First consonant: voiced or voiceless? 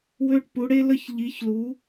voiced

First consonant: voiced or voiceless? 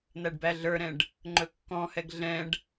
voiced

